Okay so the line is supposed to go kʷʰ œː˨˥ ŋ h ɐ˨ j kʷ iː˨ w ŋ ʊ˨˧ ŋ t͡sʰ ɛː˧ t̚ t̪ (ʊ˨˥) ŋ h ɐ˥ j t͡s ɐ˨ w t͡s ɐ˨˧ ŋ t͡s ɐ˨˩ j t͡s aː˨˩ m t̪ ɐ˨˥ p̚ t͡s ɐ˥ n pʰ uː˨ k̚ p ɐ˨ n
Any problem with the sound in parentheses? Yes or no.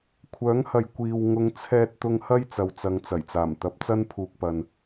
yes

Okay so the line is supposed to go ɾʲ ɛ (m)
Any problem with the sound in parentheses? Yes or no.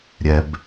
yes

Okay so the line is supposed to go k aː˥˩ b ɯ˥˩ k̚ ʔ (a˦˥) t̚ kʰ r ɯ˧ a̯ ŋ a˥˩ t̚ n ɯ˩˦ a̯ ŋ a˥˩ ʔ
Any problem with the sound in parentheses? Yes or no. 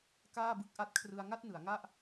no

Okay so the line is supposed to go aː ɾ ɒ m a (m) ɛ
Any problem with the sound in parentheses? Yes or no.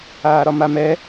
no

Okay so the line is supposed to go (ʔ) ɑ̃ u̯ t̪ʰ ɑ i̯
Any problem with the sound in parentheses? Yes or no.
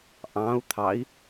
no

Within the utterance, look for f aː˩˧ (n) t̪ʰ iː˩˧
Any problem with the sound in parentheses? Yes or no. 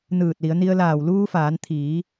no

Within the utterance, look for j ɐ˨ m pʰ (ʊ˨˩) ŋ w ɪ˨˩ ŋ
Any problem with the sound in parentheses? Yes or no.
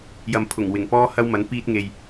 no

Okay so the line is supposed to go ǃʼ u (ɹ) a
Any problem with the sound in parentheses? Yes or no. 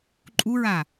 no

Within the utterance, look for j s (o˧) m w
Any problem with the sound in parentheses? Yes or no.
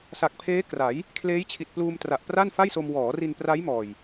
no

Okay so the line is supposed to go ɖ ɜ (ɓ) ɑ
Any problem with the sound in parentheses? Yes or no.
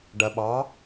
no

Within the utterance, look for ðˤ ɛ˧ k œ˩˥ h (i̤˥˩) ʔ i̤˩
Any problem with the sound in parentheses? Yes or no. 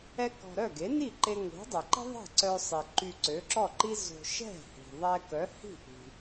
no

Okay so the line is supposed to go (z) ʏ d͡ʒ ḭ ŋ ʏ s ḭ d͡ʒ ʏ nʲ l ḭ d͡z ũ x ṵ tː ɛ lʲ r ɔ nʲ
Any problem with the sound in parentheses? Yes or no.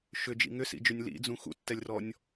yes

